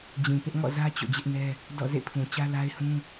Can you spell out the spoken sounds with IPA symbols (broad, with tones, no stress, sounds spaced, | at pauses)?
d͡ʑ ĩ˨ p ɪ˦ ʔ ŋ ɔ̰˦˨ z ä˦ t͡ɕ o̰˦˨ d͡ʑ ɪ˦ ʔ n ɛ˦ | d ɔ̰˦˨ z ḛ˦˨ pʰ ũ˨ t͡ɕ ä˦ l a˦ ɪ̯ h ũ˦